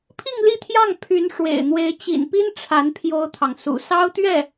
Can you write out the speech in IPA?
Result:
pʰi˥˧ŋli˥˧t̪ʰjɑ˥˩ŋ pʰy˧˥nʂwḛ˨˩ɪ̯n̪we˧˥ɪ̯ t͡ɕḭ˨˩npi˥n ʈ͡ʂʰa˧˥n pʰjo˥ʊ̯t̪ʰɑ˨ŋ sṵ˨˩sɑ˥ʊ̯t̪ɥɛ˥˩

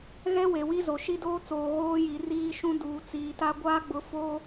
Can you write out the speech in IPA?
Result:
ɣɛ˦ we˨wi˦zo˨ ʃi˦doː˦t͡soː˨ ɣoː˦ji˨ riː˦ʃũ˦ duː˨t͡siː˨ta˦ ɡʷaː˦ɡ͡bʊ˨˦ fo˦

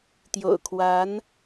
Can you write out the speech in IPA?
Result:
t̪jo̰˨˩ʊ̯kʰwa˧˥n

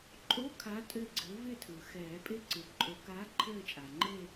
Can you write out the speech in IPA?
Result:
ǃʼo˧˥˧kʰa˨˥ tʼɘ˦˨ɡ͡ǀɘ˨˥ vɪ˦˨ tʰɯ˩xɛː˨˩˦pʼɪ˦˨ ǀɯ˩ǃʼo˨˩˦kaː˨˥ ǃʰɘː˦˨t͡ʃʼa˩ŋ͡ǃe˦˨

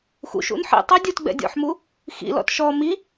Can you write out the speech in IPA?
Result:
xṵʃṵn ħḭtˤi dʲutɡ͡bɛ̰ dʲɔ̰ħmu | xḭlɔ̰t ʃɔ mi

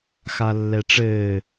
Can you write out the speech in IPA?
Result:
xalːɛʈ͡ʂɘː

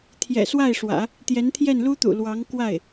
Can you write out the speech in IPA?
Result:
t̪ʰjɛ̰˨˩swa˥˩ɪ̯ʂwä̰˨˩˦ | t̪jɛ˧˥nt̪ʰjɛ˥˩nlu˥t̪ṵ˨˩ lwɑ˧˥ŋkwa˥˩ɪ̯

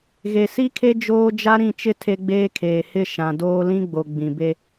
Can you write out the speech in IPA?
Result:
ɣe˨si˦kʰe˦ d͡ʒoː˦ d͡ʒa˦ɾĩ˦˨t͡ʃɪ˦ tʰe˦ɡ͡beː˦kʰeː˨ hɪ˦˨ ʃã˨doː˦ lĩ˦ɡ͡bo˨ ɡ͡bĩ˨be˦

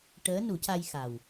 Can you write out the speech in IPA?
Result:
ʈəː˧˥nu˨˩˦ca˧jxa˨˩w

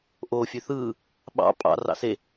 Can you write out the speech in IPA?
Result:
ʔo fʲøθɯː | ɓɑ̰ pʼɑ̰ rɑ̰se

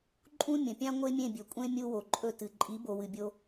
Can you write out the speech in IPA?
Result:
ǃʼũ˥ mʲɐ̃˩pʲã˥ ŋʷe˥mʲẽ˥˩bʲɵ˩kʷʼẽ˥ mʲu˧ wo˩ǃʼɵ˧ tɨ˩ ǃʼi˩˥bo˩ wɨ˩bʲo˧

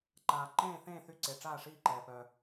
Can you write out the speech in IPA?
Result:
ǃaː˨˩ ǃẽː˦˨θẽː˦˨ θy˦˨ǀe˨˩ʈ͡ʂaː˦˨ ʂiː˦˨ǃɛː˨˩ pœ˨˩

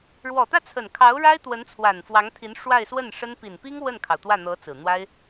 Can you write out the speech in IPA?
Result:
ɻwɔ˨˩t̪ä˥˩t͡sʰə˨˩n kʰɑ˧˥ʊ̯ɻa˥ɪ̯ t̪wə˧˥nt͡sʰwa˨˩n fwɑ˧˥ŋt̪ʰi˧˥n ʂwa˥˧ɪ̯swə˥˩nʂə˥n pi˨˩npi˥ŋ wə˥˩nkʰɑ˩ʊ̯ t̪wä˥˩n̪ɤ˧˥ t͡sɹ̩˨˩ n̪wa˥ɪ̯

